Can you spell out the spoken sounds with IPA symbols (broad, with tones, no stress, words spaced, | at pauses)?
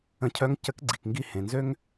ə̃˨cʰœ˨˦ŋcə˨˦k ɡ͡ǀi˨kŋɡi˦˨hẽ˨ nzø˦ŋ